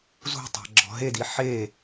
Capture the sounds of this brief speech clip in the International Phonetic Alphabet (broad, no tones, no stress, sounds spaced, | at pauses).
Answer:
z ṳ tˤ a̤ ɡ͡ǁ ɔ̤ ɦ e d i ħ e